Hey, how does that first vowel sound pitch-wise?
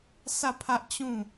falling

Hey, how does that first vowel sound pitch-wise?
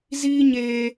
high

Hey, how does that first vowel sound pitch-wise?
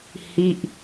falling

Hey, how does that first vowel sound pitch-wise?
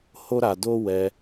high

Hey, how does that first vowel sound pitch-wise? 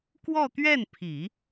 falling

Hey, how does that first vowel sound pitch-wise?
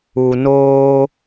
low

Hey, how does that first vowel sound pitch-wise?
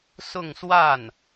falling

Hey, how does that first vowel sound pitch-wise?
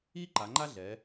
high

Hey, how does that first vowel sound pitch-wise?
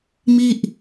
falling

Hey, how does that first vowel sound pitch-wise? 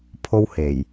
high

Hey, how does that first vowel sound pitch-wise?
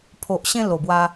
low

